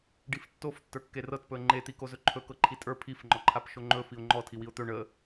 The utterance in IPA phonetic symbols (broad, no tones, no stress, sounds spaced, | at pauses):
ɖ i f tː o f tː ə˞ kː e r ɤ t p ɵ ə̯ ŋ͡ǃ e t̪ i k o z ɵ ǃʰ ɵ k ɤ ǃʰ i tʼ ə˞ pʰ i f ŋ͡ǃ ɔ ǃʰ a p ʃ o ŋ͡ǃ ɵ f i ʊ̯ ŋ͡ǃ ɔ tʰ i w i ʊ̯ t̪ ɵ ɳ ə